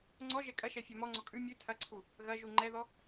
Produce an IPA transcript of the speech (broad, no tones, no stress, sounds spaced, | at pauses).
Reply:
ŋ͡ǀ ɔ ʒ ɛ kʼ ɐ ʃ ɛ fʲ ɛ m ɔ ŋ͡ǀ ɔ kʼ ʉ mʲ ʉ tʰ ɐ ǀʰ u | ɣ ɐ ʒ u ŋ͡ǃ ɛ ð ɔ